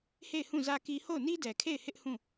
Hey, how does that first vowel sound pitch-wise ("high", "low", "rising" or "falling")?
falling